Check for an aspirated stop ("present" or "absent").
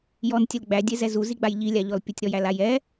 absent